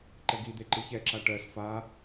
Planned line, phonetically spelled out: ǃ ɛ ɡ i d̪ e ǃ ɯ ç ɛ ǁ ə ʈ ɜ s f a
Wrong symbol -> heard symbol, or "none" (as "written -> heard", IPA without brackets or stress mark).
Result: ə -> a